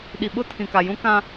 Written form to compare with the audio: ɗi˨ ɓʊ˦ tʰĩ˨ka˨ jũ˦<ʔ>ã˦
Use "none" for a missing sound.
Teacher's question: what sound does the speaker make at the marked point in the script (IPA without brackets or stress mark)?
k